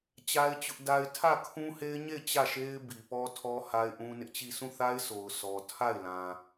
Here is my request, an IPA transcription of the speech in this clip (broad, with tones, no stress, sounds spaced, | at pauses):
t͡ɕ a˦ ɪ̯ t͡ɕ ʊ˦ ʔ d a˦ ɪ̯ tʰ ä˦˨ kʰ ũ˦ h e˦ ɪ̯ ɲ e˦˨ ɪ̯ t͡ɕ ä˦˨ ʃ e˦ ɪ̯ b i˨ p ɔ˦ tʰ ɔ˦ h a˦ ɪ̯ ʔ ũ˦ n ɪ˦ ʔ t͡ɕ i˦˨ sʰ ũ˦˨ θ a˦ ɪ̯ s o˨ ʊ̯ s ɔ˨ tʰ a˦˨ ɪ̯ l ã˨